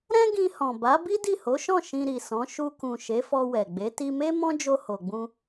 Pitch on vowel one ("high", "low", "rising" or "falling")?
high